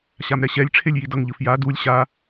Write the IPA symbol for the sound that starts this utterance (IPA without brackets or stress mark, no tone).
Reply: ɕ